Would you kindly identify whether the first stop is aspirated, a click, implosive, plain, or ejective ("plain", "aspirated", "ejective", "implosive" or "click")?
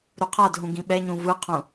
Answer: aspirated